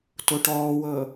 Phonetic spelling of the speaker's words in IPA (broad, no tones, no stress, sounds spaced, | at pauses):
t o ʈ ɔː w ɤ